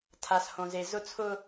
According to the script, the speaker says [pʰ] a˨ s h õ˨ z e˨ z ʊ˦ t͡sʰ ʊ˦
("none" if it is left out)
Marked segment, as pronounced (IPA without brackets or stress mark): tʰ